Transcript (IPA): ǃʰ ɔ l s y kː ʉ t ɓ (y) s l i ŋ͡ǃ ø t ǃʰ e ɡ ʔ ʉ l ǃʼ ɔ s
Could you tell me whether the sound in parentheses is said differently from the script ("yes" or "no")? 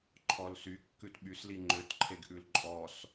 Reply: no